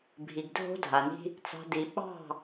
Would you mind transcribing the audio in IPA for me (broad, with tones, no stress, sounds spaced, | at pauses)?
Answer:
bʱ i˨ ɡ dʱ o̤˦ dʱ a˨ n i̤˦ | t͡s ɑ̤˨ d i˨ ɓ ɑ̤˦˨